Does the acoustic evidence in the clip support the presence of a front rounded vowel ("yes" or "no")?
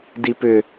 yes